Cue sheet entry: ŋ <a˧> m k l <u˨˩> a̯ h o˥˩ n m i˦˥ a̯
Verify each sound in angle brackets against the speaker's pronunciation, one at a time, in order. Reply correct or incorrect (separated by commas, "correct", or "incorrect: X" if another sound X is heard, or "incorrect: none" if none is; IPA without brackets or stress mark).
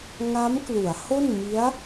incorrect: a˦˥, incorrect: u˩˦